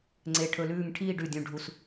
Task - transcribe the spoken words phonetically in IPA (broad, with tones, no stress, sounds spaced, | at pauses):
ŋ͡ǀ e˧˩ ʈʰ ɵ˧ l ʉː˥˧ ŋ ʈʰ iː˥˧ ɖ ʉ˧˩ dʲ ũ˧˩ ɖʱ u˧ s